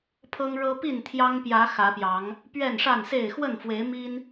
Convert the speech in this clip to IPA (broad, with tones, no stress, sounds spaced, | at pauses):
pʰ ɤ˦ ŋ ɻ ɤ˦ p i˥˨ n t̪ʰ j ɑ˦ ŋ p j ä˨˦ x ä˨˦ p j ɑ˨˦ ŋ | p ɥ ɛ˥˨ n ʂ a˥˨ n s e˥˨ ɪ̯ x w ə˥˨ n f w e˨˦ ɪ̯ m i˦ n